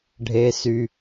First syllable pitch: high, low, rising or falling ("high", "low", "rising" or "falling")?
low